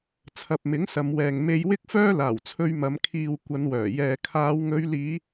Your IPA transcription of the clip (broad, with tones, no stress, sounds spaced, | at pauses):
t͡sʰ ɐ˨ p̚ m ɪ˨˥ ŋ s ɐ˨˧ m w ɛː˨ ŋ m e˧ j w ɪ˥ k̚ f œː˥ l aː˨˩ w t͡sʰ ɵ˧ ɥ m ɐ˨˧ m kʰ iː˨ w kʷ ɐ˨˧ n w œː˨˩ j ɛː˨ kʰ aː˨˧ w ŋ ɵ˨˧ ɥ l iː˨˧